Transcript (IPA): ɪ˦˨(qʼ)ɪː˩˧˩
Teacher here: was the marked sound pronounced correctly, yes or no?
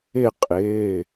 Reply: yes